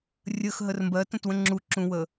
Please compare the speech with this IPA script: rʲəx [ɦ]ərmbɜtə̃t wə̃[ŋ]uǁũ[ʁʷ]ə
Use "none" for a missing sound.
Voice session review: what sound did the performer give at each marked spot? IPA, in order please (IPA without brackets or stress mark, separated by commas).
ɦ, ŋ͡ǁ, w